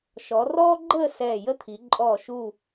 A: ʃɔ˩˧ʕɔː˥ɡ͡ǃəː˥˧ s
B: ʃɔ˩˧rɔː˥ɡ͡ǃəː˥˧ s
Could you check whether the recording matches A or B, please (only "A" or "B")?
B